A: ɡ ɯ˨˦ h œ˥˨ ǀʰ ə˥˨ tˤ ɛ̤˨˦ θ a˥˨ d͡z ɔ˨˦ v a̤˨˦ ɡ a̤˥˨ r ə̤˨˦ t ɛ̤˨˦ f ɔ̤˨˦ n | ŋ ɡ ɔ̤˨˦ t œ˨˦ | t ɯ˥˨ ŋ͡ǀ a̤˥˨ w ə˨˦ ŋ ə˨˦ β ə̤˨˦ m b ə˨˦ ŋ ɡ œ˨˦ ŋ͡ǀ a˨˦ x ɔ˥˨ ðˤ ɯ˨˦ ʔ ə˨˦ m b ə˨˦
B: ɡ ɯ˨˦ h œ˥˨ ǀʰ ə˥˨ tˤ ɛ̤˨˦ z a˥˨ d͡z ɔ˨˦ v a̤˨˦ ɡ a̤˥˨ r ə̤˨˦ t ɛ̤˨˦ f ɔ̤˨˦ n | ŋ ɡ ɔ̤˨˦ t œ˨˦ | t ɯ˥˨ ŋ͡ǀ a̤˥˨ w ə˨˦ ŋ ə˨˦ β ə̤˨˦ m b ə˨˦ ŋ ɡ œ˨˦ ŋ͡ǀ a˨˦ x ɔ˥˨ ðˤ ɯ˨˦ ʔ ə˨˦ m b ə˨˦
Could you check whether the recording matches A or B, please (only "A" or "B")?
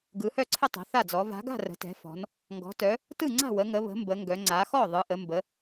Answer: A